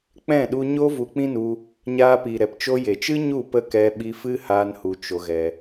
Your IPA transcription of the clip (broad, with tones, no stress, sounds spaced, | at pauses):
k͡p ɛ̃˦˨ ɗ u˧ ɲ o˦ v u˧ k͡p ĩ˦ n u˧ | ɲ aː˧ p i˨ ɾ ɛ˨ p t͡ʃ o˧ j e˨ t͡ʃ ɨ˦ ɲ u˦˨ p ə˦˨ k ɛ˧ ɓ i˧ f ɨ˦ h aː˦ n h u˧ t͡ʃ o˧ ɣ ɛ˧